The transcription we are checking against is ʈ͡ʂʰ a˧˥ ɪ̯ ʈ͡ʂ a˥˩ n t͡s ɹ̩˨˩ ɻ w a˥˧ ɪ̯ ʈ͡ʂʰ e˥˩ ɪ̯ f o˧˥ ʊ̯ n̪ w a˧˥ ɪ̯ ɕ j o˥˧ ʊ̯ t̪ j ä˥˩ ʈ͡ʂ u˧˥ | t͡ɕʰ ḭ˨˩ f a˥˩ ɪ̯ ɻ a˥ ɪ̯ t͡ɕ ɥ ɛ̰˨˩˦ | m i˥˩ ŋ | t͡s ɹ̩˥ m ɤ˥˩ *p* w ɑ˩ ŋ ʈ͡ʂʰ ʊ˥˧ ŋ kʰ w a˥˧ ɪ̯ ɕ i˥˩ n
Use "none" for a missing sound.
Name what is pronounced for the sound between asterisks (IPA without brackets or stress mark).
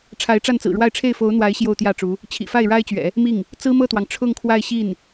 t̪